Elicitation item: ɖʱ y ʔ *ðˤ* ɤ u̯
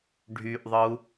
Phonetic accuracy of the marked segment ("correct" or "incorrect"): correct